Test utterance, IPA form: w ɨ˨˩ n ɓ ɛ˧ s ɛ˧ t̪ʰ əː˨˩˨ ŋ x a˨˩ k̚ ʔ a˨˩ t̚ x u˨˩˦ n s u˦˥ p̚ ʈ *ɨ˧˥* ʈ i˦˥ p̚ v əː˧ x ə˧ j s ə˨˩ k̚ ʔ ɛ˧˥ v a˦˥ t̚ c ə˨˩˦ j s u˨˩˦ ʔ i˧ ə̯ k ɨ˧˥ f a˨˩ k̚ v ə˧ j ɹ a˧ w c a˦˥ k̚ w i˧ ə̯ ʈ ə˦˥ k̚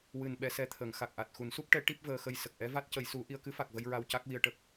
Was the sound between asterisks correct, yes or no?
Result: no